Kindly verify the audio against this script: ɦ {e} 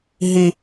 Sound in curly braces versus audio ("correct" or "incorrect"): incorrect